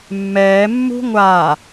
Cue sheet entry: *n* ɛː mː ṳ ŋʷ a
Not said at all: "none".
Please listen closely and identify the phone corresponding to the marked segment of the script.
mː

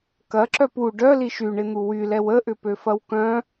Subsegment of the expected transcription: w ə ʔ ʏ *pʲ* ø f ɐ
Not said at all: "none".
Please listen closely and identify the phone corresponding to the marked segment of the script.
p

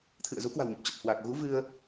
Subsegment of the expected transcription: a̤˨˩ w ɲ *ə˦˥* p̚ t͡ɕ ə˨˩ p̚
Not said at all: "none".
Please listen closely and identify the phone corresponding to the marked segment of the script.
ə˨˩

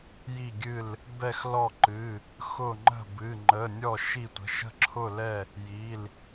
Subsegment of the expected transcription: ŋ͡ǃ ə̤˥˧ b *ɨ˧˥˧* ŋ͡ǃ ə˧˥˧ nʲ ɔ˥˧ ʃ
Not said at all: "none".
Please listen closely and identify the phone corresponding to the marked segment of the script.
ɨ˧˥˧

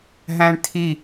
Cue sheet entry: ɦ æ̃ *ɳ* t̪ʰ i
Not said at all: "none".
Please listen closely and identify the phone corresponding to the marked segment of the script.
ɳ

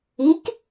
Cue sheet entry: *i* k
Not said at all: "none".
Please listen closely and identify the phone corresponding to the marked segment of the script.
i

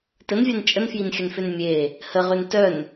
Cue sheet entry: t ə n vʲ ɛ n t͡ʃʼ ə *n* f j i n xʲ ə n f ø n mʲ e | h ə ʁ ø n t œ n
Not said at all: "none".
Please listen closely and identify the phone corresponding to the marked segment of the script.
n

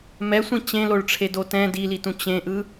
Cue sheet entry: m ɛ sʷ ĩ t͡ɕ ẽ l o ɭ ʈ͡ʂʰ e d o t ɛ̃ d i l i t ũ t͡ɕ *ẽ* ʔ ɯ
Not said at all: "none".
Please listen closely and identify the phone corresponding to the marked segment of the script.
ẽ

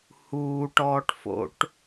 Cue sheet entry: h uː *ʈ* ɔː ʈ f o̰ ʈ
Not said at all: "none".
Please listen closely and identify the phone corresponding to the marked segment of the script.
ʈ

